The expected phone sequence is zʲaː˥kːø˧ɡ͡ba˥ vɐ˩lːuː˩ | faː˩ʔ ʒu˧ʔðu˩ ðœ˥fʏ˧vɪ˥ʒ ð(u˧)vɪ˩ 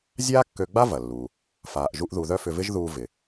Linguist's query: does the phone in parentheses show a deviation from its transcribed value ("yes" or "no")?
yes